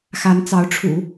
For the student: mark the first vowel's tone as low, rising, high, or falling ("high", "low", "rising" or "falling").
rising